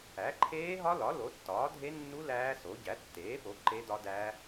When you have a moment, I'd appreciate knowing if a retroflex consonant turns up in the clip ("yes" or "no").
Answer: no